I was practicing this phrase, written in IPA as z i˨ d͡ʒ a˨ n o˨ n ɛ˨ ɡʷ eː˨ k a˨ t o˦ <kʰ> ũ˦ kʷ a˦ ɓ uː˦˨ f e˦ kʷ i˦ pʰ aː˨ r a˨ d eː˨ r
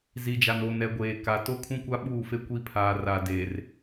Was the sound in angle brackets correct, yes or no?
yes